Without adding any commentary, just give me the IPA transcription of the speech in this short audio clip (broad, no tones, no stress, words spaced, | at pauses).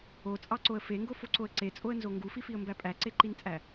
ot͡sʼɑǀoə̯ feŋɡofoǀoə̯ ǀet͡sʼoə̯nzo ŋɡufifiə̯mbæ pʼæǀeǃint͡sʼæ